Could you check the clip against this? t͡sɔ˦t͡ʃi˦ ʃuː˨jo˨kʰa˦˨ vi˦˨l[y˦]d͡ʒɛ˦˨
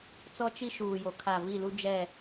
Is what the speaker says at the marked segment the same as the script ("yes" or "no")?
no